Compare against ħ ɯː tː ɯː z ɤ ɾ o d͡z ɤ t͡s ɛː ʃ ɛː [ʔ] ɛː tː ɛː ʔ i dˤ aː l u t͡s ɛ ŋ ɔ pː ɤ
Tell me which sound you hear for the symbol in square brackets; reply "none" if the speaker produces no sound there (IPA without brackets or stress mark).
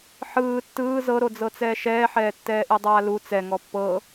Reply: ħ